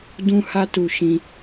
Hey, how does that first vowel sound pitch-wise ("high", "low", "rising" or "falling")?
high